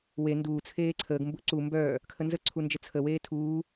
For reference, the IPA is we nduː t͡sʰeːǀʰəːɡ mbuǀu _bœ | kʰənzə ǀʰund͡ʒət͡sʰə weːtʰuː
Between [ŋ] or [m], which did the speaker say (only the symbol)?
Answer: m